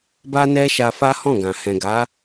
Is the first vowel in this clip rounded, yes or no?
no